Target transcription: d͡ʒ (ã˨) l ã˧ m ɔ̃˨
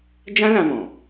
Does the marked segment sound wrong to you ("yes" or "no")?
yes